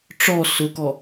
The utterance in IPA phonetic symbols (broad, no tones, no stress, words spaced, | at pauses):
ʈ͡ʂɔ sʊkɔ